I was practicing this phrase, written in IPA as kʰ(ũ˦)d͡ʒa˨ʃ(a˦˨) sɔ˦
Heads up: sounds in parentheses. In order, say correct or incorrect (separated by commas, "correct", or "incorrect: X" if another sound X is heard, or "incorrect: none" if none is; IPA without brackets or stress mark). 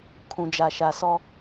incorrect: ũ˨, incorrect: a˨